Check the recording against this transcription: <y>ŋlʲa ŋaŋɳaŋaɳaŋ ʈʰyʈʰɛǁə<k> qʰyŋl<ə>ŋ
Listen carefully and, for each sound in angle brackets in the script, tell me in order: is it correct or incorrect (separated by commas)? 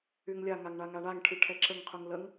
correct, incorrect, correct